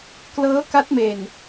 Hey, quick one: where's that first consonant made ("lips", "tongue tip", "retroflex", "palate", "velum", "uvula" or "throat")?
velum